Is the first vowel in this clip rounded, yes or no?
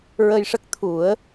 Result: no